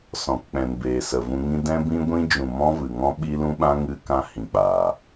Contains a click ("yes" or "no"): no